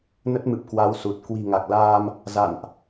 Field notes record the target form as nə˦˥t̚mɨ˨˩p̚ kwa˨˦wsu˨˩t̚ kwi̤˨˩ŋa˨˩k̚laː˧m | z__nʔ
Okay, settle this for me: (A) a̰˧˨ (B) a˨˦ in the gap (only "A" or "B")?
A